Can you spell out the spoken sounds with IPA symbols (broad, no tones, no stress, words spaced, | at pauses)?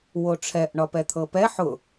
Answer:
woʈ͡ʂʰɛʔ ɳɒpɛt̪ʰɤpɛ ħʊ